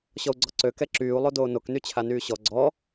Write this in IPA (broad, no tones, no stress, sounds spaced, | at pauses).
ɕ ɔ u̯ ɡ͡ǀ ɔ ǀ ø k ɛ ǁ yː u̯ lˠ o d oː n o k n y t͡ɕʰ a n yː ɕ ɔ ɡ͡ǀ ɔ